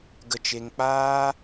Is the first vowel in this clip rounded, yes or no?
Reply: no